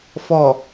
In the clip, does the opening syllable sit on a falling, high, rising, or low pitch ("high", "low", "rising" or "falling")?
low